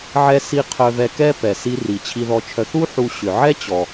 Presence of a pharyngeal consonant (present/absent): present